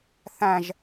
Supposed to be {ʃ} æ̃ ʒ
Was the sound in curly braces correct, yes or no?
no